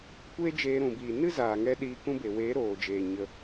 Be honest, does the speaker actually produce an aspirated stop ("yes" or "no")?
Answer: no